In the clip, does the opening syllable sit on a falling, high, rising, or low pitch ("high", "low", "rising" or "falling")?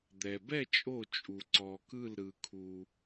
low